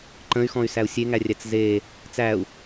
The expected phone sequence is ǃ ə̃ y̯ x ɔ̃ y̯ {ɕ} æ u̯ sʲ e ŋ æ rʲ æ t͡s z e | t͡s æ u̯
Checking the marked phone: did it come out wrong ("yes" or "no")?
yes